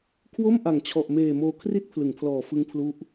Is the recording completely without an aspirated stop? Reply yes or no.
no